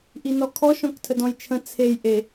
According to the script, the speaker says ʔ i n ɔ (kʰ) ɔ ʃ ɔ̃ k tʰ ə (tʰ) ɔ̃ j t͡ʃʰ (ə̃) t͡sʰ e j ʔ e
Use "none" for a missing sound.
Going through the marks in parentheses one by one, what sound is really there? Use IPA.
kʰ, d, ə̃

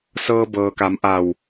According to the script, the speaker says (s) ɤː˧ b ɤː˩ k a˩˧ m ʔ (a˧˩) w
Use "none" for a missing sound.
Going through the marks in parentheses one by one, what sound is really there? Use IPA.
s, a˧˩

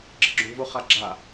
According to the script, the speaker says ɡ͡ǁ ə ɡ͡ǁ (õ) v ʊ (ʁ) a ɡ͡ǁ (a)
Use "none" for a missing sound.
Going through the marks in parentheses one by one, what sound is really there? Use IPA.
õ, χ, a

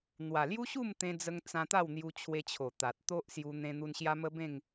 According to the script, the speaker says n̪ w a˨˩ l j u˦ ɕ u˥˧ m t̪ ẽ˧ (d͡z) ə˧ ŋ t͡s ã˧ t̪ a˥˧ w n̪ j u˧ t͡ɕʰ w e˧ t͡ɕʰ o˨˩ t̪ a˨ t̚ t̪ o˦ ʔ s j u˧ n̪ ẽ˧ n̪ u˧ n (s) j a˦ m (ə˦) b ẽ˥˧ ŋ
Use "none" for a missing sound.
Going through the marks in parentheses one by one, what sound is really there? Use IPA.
d͡z, ɕ, ə˦

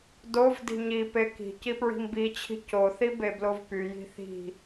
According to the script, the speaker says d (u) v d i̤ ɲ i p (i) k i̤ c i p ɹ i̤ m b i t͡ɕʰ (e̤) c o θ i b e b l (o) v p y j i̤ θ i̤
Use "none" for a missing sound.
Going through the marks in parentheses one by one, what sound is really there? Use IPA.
o, e, i̤, o

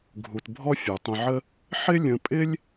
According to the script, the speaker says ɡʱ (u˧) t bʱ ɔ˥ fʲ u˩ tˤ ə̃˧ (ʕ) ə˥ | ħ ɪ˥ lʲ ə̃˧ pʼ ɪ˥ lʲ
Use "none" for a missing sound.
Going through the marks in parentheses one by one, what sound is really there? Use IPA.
u˧, ʕ

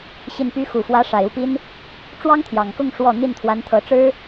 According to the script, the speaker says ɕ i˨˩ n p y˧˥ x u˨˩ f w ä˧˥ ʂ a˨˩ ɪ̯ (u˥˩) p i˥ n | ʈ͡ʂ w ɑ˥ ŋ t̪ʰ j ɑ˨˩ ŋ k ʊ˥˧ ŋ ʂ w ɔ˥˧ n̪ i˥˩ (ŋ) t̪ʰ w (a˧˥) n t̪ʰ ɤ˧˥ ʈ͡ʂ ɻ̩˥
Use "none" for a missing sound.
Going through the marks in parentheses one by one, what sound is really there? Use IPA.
u˥˩, n, a˧˥

